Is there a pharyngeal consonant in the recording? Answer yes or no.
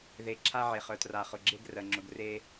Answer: yes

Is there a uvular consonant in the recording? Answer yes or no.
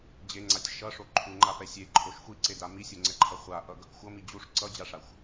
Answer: yes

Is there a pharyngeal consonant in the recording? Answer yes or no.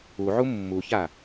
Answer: yes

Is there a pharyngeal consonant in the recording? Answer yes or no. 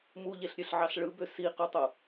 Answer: yes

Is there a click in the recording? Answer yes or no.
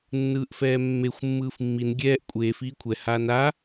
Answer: no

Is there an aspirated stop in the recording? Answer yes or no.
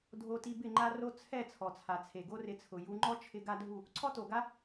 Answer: yes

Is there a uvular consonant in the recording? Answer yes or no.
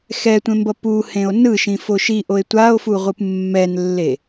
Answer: yes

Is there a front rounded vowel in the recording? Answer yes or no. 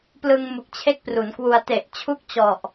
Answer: no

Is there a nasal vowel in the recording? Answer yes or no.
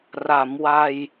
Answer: no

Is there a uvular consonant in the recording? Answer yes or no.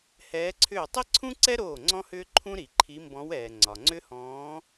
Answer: no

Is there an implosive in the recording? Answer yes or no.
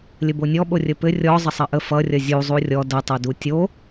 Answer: yes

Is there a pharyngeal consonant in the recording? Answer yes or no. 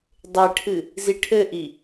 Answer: no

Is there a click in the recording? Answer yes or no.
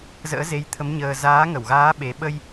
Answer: no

